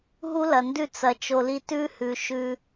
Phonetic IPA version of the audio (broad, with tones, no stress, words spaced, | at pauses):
ɦu˦lɐ˨ndʉ˦˨ t͡sɐ˨t͡ʃo˨li˧ tʉ˦hʉ˨ʃʉ˧